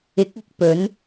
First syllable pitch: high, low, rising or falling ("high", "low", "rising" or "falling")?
rising